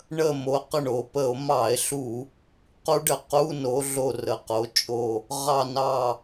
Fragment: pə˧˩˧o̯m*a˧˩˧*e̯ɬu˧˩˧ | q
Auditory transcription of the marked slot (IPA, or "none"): ɑ˧˩˧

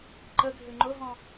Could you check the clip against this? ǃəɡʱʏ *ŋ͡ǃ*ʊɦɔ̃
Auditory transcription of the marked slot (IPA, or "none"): ŋ͡ǃ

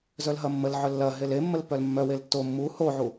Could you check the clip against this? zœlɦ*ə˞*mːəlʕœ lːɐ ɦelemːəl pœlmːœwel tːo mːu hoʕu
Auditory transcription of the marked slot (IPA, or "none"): ɐ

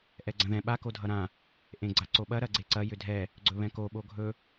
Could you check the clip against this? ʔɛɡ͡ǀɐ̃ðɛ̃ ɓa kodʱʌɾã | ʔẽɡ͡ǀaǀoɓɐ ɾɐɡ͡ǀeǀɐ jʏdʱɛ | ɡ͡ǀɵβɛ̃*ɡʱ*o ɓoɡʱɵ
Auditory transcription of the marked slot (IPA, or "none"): k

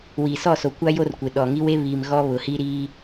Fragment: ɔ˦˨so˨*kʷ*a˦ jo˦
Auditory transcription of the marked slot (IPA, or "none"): kʷ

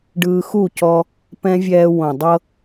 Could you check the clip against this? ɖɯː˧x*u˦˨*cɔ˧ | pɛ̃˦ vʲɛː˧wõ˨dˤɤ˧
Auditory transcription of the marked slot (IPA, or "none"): u˦˨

